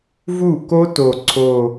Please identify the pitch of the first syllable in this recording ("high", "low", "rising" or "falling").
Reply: falling